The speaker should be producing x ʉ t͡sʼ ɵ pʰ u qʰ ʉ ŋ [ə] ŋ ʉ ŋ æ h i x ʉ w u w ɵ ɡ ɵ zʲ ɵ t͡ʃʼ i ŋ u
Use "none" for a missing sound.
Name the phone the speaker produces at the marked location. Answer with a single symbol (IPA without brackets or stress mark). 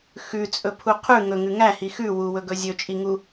ɵ